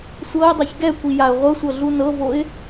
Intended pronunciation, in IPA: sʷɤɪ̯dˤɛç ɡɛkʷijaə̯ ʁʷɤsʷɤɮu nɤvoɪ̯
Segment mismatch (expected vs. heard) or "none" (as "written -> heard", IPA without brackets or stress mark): none